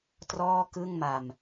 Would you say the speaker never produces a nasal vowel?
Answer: yes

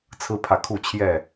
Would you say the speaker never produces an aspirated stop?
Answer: no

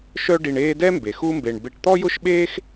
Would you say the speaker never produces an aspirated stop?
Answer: yes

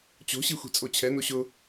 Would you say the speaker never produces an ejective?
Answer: no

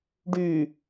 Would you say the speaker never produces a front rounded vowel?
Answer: no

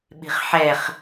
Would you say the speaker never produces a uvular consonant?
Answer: no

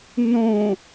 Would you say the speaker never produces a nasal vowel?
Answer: no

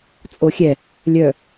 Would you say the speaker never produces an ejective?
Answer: no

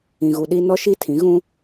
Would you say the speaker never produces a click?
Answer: yes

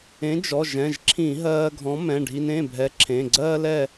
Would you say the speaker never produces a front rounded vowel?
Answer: yes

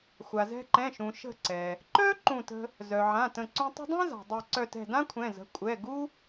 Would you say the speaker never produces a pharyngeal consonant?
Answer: no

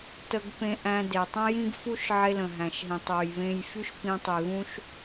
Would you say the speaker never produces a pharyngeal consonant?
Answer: no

